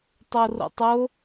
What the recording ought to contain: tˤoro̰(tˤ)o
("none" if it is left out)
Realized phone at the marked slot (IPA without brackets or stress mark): tˤ